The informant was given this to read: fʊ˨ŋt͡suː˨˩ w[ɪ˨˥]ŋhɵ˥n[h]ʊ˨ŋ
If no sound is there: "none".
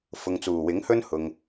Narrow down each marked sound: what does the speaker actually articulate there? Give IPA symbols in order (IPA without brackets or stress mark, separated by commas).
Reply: ɪ˨˥, h